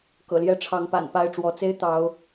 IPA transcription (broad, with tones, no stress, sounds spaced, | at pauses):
k ɤ̰˨˩ l j ɛ˦ ʈ͡ʂʰ ɑ˨˦ ŋ p a̰˨˩ n p a˥˨ ɪ̯ ʈ͡ʂ w ɔ˨˦ t͡s e˦ ɪ̯ t̪ ɑ˨˦ ʊ̯